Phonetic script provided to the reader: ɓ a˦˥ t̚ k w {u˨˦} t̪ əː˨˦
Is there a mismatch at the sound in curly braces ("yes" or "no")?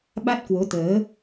yes